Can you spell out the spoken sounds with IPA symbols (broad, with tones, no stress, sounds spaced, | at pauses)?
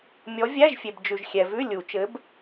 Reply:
mʲ ɔ˨˦ vʲ æ˧˥˧ ʒ fʲ e˨ b d͡ʒ ʉ˨ ʒ xʲ ɛ˨ v ʉ˧˥˧ lʲ u˨˩˦ t͡ʃ ɘ˨˦ b